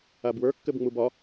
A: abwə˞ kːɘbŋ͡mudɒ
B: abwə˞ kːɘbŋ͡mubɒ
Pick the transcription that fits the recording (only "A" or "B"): B